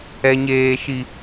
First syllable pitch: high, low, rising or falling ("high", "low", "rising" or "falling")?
high